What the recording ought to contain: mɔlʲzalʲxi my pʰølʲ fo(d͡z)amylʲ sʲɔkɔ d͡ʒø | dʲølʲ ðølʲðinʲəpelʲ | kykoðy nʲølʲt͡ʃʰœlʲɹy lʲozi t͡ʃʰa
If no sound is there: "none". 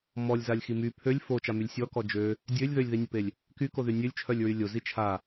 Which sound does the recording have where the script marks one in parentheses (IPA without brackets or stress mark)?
t͡ʃ